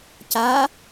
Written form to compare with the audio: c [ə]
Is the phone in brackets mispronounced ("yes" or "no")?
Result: yes